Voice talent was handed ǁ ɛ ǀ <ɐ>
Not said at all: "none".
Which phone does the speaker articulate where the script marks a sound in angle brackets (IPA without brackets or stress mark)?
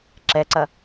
ɐ